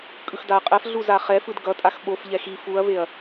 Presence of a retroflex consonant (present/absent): absent